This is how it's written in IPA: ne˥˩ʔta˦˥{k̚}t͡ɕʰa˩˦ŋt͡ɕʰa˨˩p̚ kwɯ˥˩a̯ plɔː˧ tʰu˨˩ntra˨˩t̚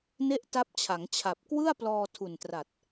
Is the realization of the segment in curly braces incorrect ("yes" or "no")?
yes